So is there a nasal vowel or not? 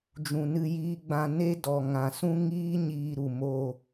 yes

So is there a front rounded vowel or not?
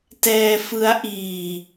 no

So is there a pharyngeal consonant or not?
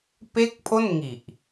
no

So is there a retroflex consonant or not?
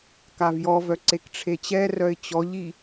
yes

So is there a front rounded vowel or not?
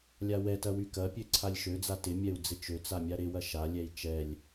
yes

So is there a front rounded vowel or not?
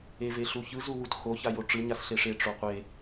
no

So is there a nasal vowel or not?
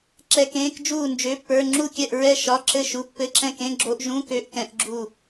yes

